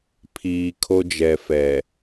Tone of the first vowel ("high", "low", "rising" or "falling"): low